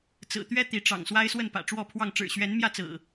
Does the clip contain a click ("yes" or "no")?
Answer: no